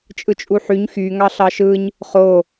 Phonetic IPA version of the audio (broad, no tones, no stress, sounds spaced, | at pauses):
t͡ʃʼ ɯ t͡ʃʼ u ħ y ɲ x y ŋ ɑ ɬ ɑ ʃ ɯ ɲ | χ o